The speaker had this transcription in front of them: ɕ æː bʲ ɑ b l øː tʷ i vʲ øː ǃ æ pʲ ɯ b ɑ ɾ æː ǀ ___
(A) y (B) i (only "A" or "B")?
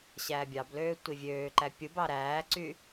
A